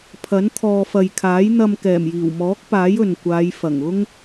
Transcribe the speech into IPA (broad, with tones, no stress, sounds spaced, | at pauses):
pʰ ɐ˨˥ n t̪ʰ ɔː˨ f ɐ˨ j kʰ aː˨˥ j n̪ ɐ˧ m k ɛː˨˩ m j iː˨˩ w m ɔː˨˥ k̚ p aː˨˥ j ɵ˨ n kʷ aː˨˧ j f ɐ˨˩ ŋ ʊ˥ ŋ